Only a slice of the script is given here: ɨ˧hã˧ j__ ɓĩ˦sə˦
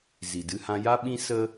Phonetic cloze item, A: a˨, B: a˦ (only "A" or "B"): B